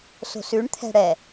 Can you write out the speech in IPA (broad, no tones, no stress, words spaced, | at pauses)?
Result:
so̤sʉɳt̪ʰɛ̤ ɽɛ